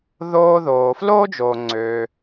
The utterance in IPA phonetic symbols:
ð oː˧ ð oː˩ f l oː˥ d͡ʒ oː˩ ŋ͡ǀ øː˩

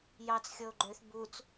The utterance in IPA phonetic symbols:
j ɑ t͡s xʲ ɤ o̯ ɡ͡ǃ ø θ b u t͡s

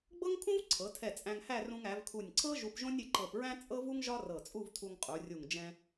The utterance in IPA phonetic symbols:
ɡ͡b ɤ˥ ŋ kʰ ũ˥ v ǀʰ ɤ˩˧ tʰ ɛ˧˩ t͡sʼ æ̃˧ ŋ h æ˥˧ r ũ˧ ŋ æ˩˧ v kʰ u˧˩ nʲ ǀʰ ɤ˥ ʒ u˧ p ʒ õ˥ nʲ ɪ˧ ǃ ɤ˧˩ p ɹ æ̃˥ t͡sʼ ɤ˥ v u˥ ŋ ʒ ɒ˥ r ɤ˧˩ t͡sʼ u˥˧ v tʰ u˧ ŋ qʼ u˩˧ rʲ u˧˩ ŋ d͡ʒ ɛ̃˧

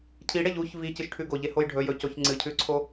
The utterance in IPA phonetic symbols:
cʰ i ɽ e ʎ u ç v i c ɨ ʃ ʈʰ ʉ ɡ o ʎ e h o j ɖʱ ɵ j ɵ c o ç ŋ͡ǀ ɨ cʰ ʉ ǀʰ o

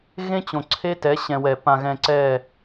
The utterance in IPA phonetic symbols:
ɣ ẽ˦ t͡ɕ õ˨ ǀʰ e˦ t ɛ˨˦ ɕ ɛ̃˨ w ɛ˨ p ã˨ ɣ ɛ̃˨ ǀ ɛ˦˨

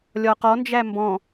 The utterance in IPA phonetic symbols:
lʲ ɒ q ɔ n d͡ʒ æ m b ɔ̃

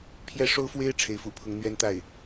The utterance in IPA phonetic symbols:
pʰ j ɛ˥ ʂ o˥ ʊ̯ f w e˥ ɪ̯ ʈ͡ʂʰ e˧˥ ɪ̯ f ṵ˨˩ pʰ ʊ˧˥ ŋ n̪ ɥ ɛ˥ n t̪ a˥˩ ɪ̯

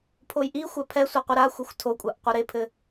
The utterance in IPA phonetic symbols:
pʰ o j ʔ i xʷ a pʰ ɛ sʷ ɘ qʷ i ɾ a xʷ ɛ xʷ tʰ o kʷʼ a ʔ qʷ ɘ ɾ e pʰ ɘ

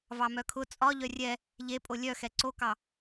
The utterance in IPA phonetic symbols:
v ɑ m œ kʰ ʊ t͡sʼ ɒ ʎ œ rʲ ɛ | ʎ e pʼ o lʲ œ x ɛ ǀ o k ɑ

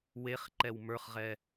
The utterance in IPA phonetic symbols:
w e χ ǃ ɛ w m ə˞ χ ʁ ɛ

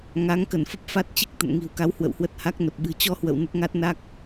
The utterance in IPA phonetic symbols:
ŋ a˨˦ ŋ k ə˧˩ n f ə˦˥ p̚ f a˦˥ t̚ t͡ɕ i˦˥ k̚ t̪ ə̰˧˨ n ŋ i̤˨˩ w k a˨˦ w h w ə̰˧˨ w h w ə˦˥ t̚ h a˦˥ k̚ n ə˨˩ p̚ ɓ ɨ̤˨˩ t͡ɕ ɔ˧ h w ə̰˧˨ w n ə˦˥ t̚ ŋ a˦˥ t̚ n a˦˥ k̚

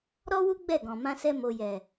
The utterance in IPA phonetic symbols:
ɾ ɔ˦ w u˦ ɡ͡b ɛ˦˨ ɡ ɔ̃˨ m ã˧ s ɛ˧ m o˨ j ɛ˨

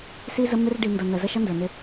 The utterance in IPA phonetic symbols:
s i˦ z ə˦ m ɪ˦ r ɖ i˨ n d ʌ˨ n ə˨ z ə˦ ʃ ʌ˦ n d ə˞˨ n ɪ˦

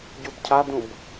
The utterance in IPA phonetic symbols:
ɟ u b cʰ a d ũ b

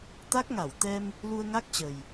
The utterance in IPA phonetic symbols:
t̪ a˦˥ k̚ ŋ a˧˩ w t̪ ɛ˧ m | l u˧ ə̯ ŋ a˦˥ k̚ t͡ɕ ə˨˩ j

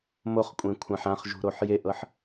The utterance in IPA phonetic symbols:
m o χ kʷʼ ẽ kʷʰ ã ħ ã χ ʒ ṳ ɾ o ħ j e ʔ ɤ ħ

